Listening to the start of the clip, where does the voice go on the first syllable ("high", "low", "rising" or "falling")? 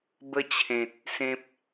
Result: high